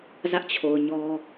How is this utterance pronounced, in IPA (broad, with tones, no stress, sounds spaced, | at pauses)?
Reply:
z ä˦ ʔ t͡ɕʰ o˨ ʊ̯ ɲ ɔ˦